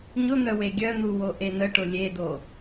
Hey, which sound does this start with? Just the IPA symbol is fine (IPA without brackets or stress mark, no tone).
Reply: ɲ